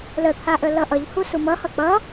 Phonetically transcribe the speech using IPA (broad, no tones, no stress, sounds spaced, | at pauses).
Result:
l ə t̪ʰ a ʔ ə l ʌ ʔ ʌ ʎ h u s u m ʌ h ʌ k͡p ʌ